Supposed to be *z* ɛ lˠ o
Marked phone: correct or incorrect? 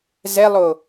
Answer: correct